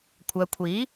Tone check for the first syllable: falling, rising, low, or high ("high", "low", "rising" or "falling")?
low